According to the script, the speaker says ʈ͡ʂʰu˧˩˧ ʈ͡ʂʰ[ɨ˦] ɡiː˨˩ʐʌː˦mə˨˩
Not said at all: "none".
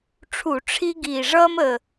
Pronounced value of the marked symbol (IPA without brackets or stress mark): i˦